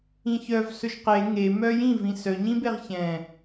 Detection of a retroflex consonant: absent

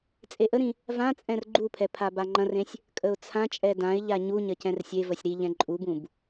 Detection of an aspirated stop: present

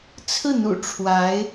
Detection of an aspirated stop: present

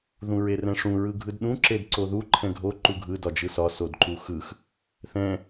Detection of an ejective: absent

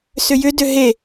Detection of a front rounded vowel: present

